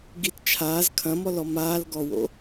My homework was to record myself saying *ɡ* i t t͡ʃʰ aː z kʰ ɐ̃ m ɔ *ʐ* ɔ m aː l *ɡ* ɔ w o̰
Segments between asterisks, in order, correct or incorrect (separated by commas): correct, incorrect, correct